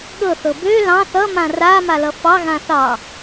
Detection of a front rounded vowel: present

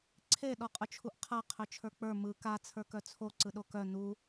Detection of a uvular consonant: present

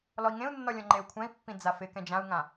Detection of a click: present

